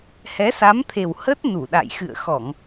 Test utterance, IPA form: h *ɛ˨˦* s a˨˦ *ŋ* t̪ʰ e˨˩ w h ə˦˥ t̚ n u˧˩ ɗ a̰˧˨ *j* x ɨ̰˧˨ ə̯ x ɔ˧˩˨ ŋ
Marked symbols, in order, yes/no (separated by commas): yes, no, yes